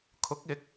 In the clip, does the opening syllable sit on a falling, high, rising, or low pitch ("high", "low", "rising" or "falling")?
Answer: rising